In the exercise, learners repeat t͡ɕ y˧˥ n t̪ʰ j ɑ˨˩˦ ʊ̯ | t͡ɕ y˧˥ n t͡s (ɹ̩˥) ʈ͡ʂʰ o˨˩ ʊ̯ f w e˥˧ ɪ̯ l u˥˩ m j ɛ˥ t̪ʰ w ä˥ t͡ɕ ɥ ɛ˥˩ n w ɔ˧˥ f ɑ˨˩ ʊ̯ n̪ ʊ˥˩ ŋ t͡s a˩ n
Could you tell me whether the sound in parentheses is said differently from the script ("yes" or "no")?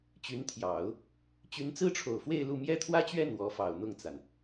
no